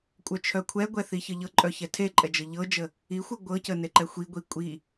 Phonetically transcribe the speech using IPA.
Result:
kʷʼ œ t͡ʃʰ œ kʷʰ ɛ ɡʷ ɛ θ i ç ə ʎ ɤ ǃʼ œ ç ɛ tʰ e ǃʼ ɛ d͡ʒ ɤ ʎ ɤ d͡ʒ ə | i xʷ ɤ ɡʷ ɤ c ə n e ǃ ɛ xʷ i ɡʷ i kʷʼ i

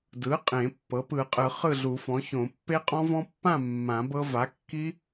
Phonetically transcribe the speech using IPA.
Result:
d ɯ˩˥ qʼ ẽ˨˩˦ pː ɤ˩˥ p ɯ˨˩˦ qʼ ɯ˨˩˦ χ ɯ˥˨ ɮ u˨˩˦ f ɔ̃˩˥ ç õ˨˩˦ pː e˦˥ qʼ ɔ̃˦˥ v ɔ̃˦˥ pː ã˥˨ mː ã˨˩˦ b ɤ˦˥ v a˩˥ kː i˦˥

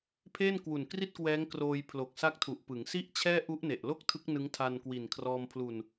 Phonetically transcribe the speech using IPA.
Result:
pʰ eː˥˩ n k w u˨˩ n k r i˥˩ t̚ k w ɛː˦˥ ŋ k r oː˧ j pʰ l o˨˩ k̚ s a˦˥ k̚ tʰ u˨˩ ʔ p ɯ˩˦ ŋ s i˥˩ ʔ t͡ɕʰ ɛː˥˩ ʔ u˦˥ ʔ n e˨˩ ʔ l o˥˩ k̚ tʰ ɯ˦˥ k̚ n ɯ˦˥ ŋ tʰ a˧ n k w i˨˩ n kʰ r ɔː˧ m pʰ l u˧ n

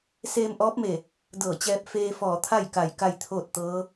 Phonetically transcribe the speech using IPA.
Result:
s eː˧ m ʔ ɔː˧˥ p̚ m e˧˩ | d ɤː˧˩ t͡ɕ ɛː˧ p̚ f eː˧ f ɔː˧˩ t̪ʰ a˥˨ j k a˧˩ j k a˥˨ j t̪ʰ oː˥˨ t̚ t̪ ɤː˧˥

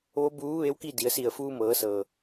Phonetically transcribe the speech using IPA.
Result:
ʋ o˧˥ b uː˧˥ ʋ e˧˥ w k i˥˨ d i˩˧ ə̯ s i˧˩ ə̯ f uː˧ m ɤː˩˧ s ɤː˩

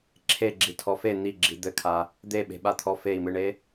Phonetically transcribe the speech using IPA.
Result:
ǁʰ e ɡ͡ǁ i tʰ ɔ f e n̪ i ɡ͡ǁ i d̪ ɘ kʰ a | d̪ e ɓ e̤ ɓ a t̪ʰ ɔ f e i̯ m ɨ ɳ e

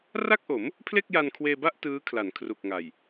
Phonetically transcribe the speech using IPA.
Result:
r a˥˩ k̚ ʔ o˩˦ m | pʰ l e˥˩ k̚ j a˧ n kʰ w eː˧ b a˥˩ ʔ t ɯː˦˥ kʰ l a˩˦ n kʰ r u˨˩ k̚ ŋ a˨˩ j

